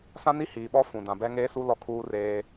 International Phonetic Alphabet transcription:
sã˦ni˦hiː˨ɓɔ˦ fũ˨dã˨ bɛ˦ ŋeː˦su˦ lɔ˦ kʰuː˦reː˦

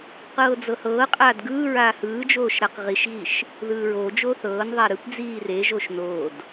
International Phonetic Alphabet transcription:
qɤːd͡zɤhɤːqʼaːd ɡɯːɹaː hɯːd͡ʒoːʃ ɾaqʁiʃɣiʃ | ðɯːɹod͡ʒoː θɤːnðˤa ɾɯpd͡ziː reʒoʃ noːd

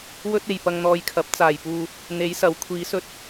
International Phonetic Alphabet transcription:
wɵ˥t̚ e˨jpɐ˧ŋn̪ɔː˧jkʰɐ˨˥p̚ t͡saː˨˩jpuː˨ | n̪e˨˥jsɐ˨˥w kʷʰiː˨˧sɵ˥t̚

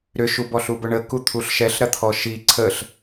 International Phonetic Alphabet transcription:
ɾʏʃubɔɬu bʊɳəku t̪ʰuɬʃɛɬ ɾɐt̪ʰɔʃi ǀʰəɬ

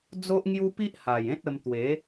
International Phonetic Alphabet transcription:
d͡zo˦ʔŋju˦pi˦ʔha˨˩j ẽ˦t̚ə˧m t̪we˨˦

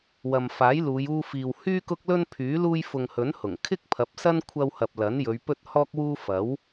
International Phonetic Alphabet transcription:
wɐ˨m faː˨˥jluː˨˧juː˧fiː˨w hyː˧kʊ˧k̚lɵ˧n pʰyː˨˥luː˧j fʊ˨ŋhɵ˨˥nhʊ˨˩ŋ kʰɪ˥k̚pʰɐ˨˥p̚sɐ˥n kʷʰɐ˧whɐ˨p̚lɐ˨˥njɵ˨˧ɥ pɵ˥t̚hɔː˥k̚wuː˥ fɐ˨˥w

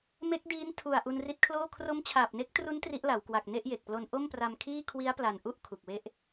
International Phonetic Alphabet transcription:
me˦˥k̚diː˦˥n tʰu˨˩a̯ ʔu˧nri˦˥t̚kʰloː˥˩ kʰro˦˥mt͡ɕʰaː˨˩p̚ne˦˥k̚tru˦˥n tri˦˥ʔla˩˦wkwa˨˩k̚ ne˥˩ʔje˨˩k̚plo˧n ʔo˥˩mpra˧mkʰiː˥˩ kʰwi˦˥a̯pla˨˩n ʔu˥˩ʔ kʰu˨˩k̚we˥˩ʔ

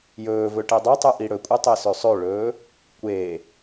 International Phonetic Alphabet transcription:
jɵːvɵ ʈedˤɐtˤɨ ʔiɽɵkʷʼɨ tˤesɵsˤɵɭɵː | kʷe

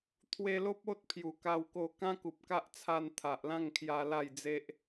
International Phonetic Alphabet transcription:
t̪ʰwe˧lo˦p̚ o˦t̚pʰju˨˩ka˧w ko˧kã˦ ku˨p̚ka˦ʔ t͡sʰa˧n t̪ʰa˨ʔlã˥˧ŋkʰja˧ la˥˧jd͡ze˦ʔ

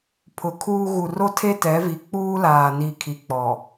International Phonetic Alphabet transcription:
pʰʊ˨kʰuː˦ ɣu˨ro˦ tʰe˦tɛ˨˦vi˨ k͡puː˦laː˨ ni˨kʰi˨ k͡pɔ˨

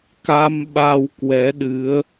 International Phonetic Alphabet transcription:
ka˧mɓa˧w kwɛ˨˦ɗɨ˨˦ə̯

